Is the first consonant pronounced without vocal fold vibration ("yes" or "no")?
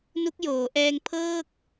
no